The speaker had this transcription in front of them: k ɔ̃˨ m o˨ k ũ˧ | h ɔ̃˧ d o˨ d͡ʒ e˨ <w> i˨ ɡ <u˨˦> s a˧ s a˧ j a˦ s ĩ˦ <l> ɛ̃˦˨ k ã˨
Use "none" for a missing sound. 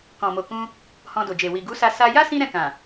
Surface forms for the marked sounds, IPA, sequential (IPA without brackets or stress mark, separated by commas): w, u˨˦, ɾ